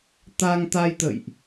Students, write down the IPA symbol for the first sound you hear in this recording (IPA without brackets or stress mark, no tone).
t̪